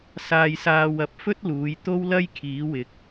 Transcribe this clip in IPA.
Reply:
s aː˧ j s aː˧ w ɐ˧ p̚ f ɵ˥ t̚ l uː˨˧ j t̪ o˥ w l ɐ˥ j kʰ iː˨˥ w ɪ˨˥ k̚

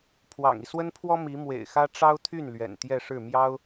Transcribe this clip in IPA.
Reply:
pʰ w ɑ̰˨˩ ŋ i˦ s w ə˥ n pʰ w ɔ˥ m i˧˥ m w ḛ˨˩ ɪ̯ x ä˥ ʈ͡ʂ ɑ˥ ʊ̯ t̪ʰ y˥˩ n l ɥ ɛ̰˨˩ n t̪ j ɛ˥˧ ʂ ɻ̩˥˩ m j ɑ˥ ʊ̯

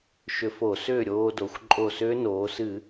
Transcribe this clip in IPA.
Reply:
ʃ ʏ˧ f o˧˩˧ s ʏː˥˨ ɾʲ oː˧ d o˩˧ xʷ ǃʼ o˧˩ s ʏː˦˥ n oː˩˧ s ɨ˧˩˧

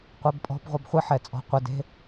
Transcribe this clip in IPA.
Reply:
qʷ ɛ b pʼ ɔ̤ b ʁʷ ɐ b χʷ ɨ ħ ɛ t͡sʼ ɔ̤ qʷ ɘ d e̤

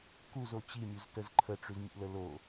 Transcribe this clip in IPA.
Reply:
k u z o t͡ɕ i mʲ u z t ə z ǃʰ ə ʈ͡ʂ ʉ z mʲ ṵ l ə l o

